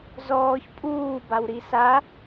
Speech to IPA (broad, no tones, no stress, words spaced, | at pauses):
zɔːç pʼuːbawɾi sa